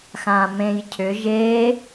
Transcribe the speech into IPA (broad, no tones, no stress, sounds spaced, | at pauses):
x ã m ẽ j cʰ ʏ ʒ e